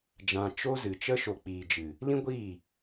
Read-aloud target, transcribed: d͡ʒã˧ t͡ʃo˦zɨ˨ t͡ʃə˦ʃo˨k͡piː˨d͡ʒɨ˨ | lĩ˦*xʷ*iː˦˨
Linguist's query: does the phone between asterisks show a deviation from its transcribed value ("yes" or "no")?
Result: yes